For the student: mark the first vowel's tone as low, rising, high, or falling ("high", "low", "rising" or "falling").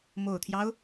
low